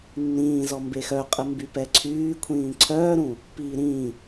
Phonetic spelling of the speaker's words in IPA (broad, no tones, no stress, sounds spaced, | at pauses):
nː ĩː z ɔ m b e x œ qʼ ə m b y p ɛ ǀʰ yː kʷʰ ĩː ǀʰ œː ɾ ũ | p iː ɾ ĩː